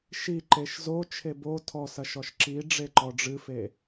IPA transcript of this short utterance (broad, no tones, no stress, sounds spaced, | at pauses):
ʃ i ǃ e ʃ z o t͡ʃʰ e b o tʰ ɔ s ɐ ʃ ɔ ʃ ǁ i ɖ͡ʐ e ǃ ɔ ɖ͡ʐ ɨ f e